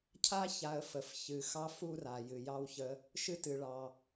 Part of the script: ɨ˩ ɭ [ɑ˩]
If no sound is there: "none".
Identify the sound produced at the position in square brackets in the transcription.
ɑ˩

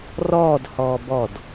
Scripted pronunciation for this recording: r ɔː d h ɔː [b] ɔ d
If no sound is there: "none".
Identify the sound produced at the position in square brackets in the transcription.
b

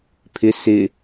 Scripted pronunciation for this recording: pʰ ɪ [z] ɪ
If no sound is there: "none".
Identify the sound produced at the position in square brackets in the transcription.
s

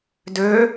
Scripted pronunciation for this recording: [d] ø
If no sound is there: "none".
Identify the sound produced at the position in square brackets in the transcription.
d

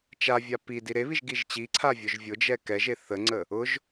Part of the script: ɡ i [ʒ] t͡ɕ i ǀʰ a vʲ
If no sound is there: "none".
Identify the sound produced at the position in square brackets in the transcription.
ʒ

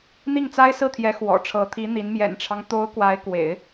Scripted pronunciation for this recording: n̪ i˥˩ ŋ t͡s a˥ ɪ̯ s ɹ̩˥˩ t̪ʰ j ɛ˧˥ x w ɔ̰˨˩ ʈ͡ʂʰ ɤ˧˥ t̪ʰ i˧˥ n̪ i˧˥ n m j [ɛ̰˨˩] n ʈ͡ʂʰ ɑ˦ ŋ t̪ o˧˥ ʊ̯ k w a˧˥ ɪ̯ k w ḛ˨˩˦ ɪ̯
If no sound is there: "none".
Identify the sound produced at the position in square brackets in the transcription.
ɛ̰˨˩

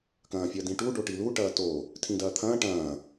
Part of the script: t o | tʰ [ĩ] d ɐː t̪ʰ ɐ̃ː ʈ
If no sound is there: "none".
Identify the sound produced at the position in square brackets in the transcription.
ĩ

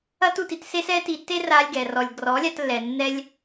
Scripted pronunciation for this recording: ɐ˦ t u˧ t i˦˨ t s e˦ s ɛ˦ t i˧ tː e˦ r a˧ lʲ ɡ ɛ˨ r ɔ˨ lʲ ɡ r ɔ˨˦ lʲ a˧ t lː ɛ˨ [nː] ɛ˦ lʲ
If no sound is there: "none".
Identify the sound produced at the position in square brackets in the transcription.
nː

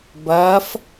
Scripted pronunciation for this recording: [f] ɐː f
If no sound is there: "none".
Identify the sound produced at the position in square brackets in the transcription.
b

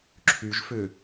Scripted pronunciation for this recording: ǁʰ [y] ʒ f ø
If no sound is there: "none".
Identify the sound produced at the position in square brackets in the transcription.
y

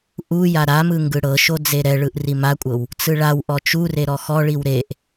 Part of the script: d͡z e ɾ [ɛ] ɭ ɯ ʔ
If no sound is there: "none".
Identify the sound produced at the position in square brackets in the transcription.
ɛ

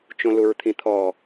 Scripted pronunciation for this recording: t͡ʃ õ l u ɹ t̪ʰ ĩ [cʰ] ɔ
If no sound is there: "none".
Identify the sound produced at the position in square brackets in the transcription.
t̪ʰ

